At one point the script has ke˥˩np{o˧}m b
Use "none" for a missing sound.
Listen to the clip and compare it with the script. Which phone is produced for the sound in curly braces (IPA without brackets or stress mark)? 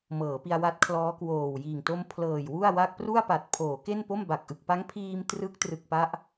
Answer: o˥˩